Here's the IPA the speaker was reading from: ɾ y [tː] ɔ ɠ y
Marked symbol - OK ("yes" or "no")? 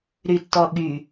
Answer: yes